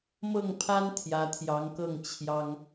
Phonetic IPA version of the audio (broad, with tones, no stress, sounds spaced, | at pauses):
m ɤ˥˩ ŋ pʰ a˥ n t̪ʰ j ä˧˥ t̪ʰ j ɑ˧˥ ŋ k ɤ˥˩ ŋ t͡ɕʰ j ɑ˥ ŋ